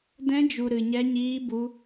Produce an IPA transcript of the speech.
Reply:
d ɛ̃˦ d͡ʒ u˧ ɾ ɨ˧ ɲ ɛ˦ ɲ iː˦ b u˦

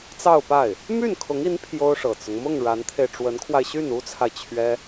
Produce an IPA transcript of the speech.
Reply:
t͡s ɑ˥˧ ʊ̯ p a˥˩ ɪ̯ | m y˥˩ n kʰ ʊ˧˥ ŋ i˧˥ n pʰ j o˥ ʊ̯ ʂ ɤ˨˩ t͡s ʊ˦ ŋ m ʊ˥˩ ŋ ɻ a˧˥ n t̪ʰ e˧ ɪ̯ ʈ͡ʂ w ə˧˥ n kʰ w a˧ ɪ̯ ɕ y˥˩ n u˥ t͡sʰ a˨ ɪ̯ t͡ɕʰ ɥ ɛ˥

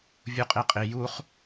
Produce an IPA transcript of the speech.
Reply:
vʲ u qʼ i qʼ i j u χ

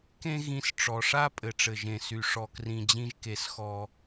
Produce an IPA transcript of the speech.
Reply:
k ẽ˥ ɣ ĩ˧ s ʈ͡ʂ ɔ˩ ʂ a˥ pʼ ɘ˩ ʈ͡ʂ ɘ˩ ʒ ẽ˩ s y˩ ʂ ɔ˩ k r ĩ˩ d͡ʑ ĩ˧ ʒ k e˩ s x ɔ˩

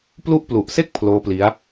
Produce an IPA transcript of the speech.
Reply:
p l u˦˥ ʔ p l u˨˩ ʔ s e˥˩ k̚ pʰ l oː˦˥ p l i˦˥ a̯

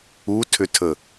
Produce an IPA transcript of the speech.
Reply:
u tʰ ʏ tʰ ə

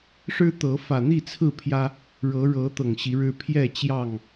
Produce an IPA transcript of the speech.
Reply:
ʂ ɻ̩˦ t̪ ɤ˨˦ f ä˨˩ n̪ i˥˨ t͡sʰ ɹ̩˥˨ pʰ j ä˦ | ɻ ɤ˨˦ ɻ ɤ˨˦ t̪ ɤ˨˩ ŋ ɕ i˨˦ ɻ ɻ̩˦ pʰ j ɛ˥˨ t͡ɕ j ɑ˥˨ ŋ

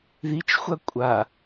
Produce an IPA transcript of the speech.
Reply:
ð i t͡ʃ xʷ a kʷʼ a

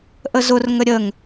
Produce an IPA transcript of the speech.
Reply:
ʔ ə z ʊ r ŋ ə ɾʲ ə ŋ

